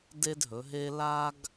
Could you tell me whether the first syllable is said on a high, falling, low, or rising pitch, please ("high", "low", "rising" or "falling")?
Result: high